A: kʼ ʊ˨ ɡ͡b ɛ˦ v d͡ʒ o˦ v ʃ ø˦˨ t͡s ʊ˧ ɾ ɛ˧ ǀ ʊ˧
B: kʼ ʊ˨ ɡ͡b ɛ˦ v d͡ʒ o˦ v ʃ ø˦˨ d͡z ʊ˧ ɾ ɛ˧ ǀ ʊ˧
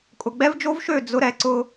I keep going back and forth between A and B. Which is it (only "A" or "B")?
B